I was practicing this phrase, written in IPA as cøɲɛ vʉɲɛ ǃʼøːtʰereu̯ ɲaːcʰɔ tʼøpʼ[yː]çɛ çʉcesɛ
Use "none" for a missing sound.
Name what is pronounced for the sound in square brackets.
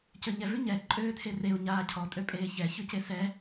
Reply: eː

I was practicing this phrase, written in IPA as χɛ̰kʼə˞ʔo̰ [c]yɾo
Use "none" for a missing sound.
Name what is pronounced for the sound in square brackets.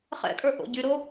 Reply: ɟ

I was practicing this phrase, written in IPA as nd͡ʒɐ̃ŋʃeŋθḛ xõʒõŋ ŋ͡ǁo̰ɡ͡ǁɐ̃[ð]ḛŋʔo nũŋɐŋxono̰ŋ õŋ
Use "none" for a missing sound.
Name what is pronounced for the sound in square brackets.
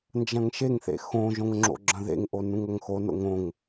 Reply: ð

